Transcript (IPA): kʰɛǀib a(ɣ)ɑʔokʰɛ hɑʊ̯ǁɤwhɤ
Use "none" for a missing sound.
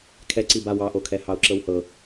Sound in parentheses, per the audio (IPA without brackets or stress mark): w